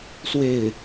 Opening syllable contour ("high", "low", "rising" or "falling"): falling